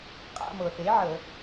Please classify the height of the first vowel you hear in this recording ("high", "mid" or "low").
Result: low